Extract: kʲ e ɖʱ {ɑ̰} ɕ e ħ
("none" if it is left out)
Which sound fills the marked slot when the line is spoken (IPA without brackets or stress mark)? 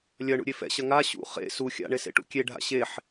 a̰